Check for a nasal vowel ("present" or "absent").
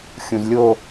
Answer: present